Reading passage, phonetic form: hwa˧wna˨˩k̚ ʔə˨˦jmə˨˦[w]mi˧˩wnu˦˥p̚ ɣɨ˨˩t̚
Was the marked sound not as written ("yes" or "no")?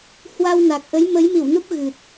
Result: yes